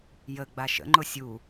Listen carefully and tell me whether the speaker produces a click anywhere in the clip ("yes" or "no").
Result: yes